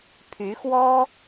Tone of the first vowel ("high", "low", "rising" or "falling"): rising